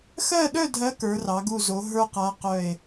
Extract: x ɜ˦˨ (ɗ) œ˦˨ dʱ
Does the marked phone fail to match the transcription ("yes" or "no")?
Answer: no